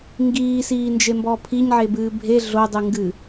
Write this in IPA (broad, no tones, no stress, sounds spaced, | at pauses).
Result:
ŋ ɡ iː s iː n d͡ʒ e m b ɔ pʰ i ɲ ʕ e b ɨː bʱ e ɮ o dˤ ɨ ŋ ɡ ɨ